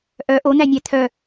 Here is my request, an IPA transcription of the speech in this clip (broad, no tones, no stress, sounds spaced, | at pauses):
ʔ œ ʔ o n̪ æ nʲ æ t̪ʰ œ